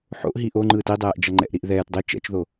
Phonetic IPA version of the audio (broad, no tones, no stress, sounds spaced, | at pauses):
ħ o̰ ʔ ɦ i ʔ o ŋ͡ǃ ɯː t i dˤ ɛː ʔ d͡ʒ ʌ ŋ͡ǃ ɛ̰ ʔ ɾ i ʔ ð ɛː t dˤ e t͡ʃ ɛ̰ t͡ʃ ð o